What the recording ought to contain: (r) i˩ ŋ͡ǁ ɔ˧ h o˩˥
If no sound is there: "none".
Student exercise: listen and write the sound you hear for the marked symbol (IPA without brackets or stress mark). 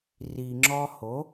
r